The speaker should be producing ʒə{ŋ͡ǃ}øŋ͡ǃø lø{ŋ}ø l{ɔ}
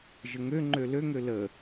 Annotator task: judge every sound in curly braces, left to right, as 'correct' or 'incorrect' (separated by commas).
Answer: incorrect, correct, incorrect